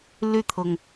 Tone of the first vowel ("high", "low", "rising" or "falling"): falling